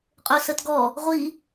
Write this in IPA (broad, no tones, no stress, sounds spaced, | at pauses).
qʼ ɵ s ə t ɡ ɔ | ʁʷ i